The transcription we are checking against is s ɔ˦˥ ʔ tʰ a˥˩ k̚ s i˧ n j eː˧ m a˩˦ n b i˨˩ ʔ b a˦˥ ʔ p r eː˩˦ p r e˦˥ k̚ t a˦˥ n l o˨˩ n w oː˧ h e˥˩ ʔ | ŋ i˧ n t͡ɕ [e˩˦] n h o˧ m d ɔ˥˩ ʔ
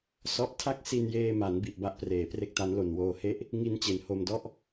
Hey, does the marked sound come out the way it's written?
yes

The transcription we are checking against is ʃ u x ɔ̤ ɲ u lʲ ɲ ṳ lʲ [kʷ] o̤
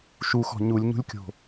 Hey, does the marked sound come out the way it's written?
no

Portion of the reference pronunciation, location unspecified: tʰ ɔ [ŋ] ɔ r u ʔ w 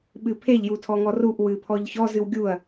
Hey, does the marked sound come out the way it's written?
yes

